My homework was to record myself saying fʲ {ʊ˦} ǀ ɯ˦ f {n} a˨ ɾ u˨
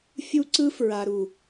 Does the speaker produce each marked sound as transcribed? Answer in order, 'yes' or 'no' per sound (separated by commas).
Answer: no, no